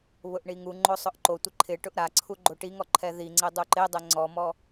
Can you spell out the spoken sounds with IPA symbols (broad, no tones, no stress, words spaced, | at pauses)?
βʊʔɳiŋuŋ͡ǃo sˤʊʔǃotʷɪ ǃʰɪʈʊʔ ɾaǀʰu ɡ͡ǃoʈiŋɔ ǃʰɛðiŋ͡ǀe dˤuǃedˤɛ ŋ͡ǀɔmɔ